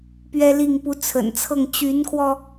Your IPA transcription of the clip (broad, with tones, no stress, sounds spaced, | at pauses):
p ɥ ɛ˥ l i˥˩ ŋ p u˧˥ t͡sʰ ə̰˨˩ n t͡sʰ ɤ˥˩ ŋ t͡ɕ y˧˥ n kʰ w ɔ˧